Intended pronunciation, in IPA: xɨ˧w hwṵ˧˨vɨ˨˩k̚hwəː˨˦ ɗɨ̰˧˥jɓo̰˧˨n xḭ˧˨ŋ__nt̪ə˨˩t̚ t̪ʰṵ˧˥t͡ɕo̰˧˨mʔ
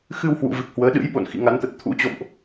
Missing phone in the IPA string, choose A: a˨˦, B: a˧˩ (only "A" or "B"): A